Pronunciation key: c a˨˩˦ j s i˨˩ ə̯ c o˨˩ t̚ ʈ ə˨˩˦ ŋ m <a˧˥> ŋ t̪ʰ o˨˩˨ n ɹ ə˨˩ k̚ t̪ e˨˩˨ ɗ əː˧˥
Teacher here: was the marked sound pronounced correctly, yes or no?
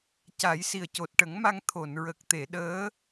no